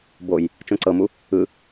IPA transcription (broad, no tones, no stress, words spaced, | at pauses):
boj | t͡ʃõǀɤmu | ɯ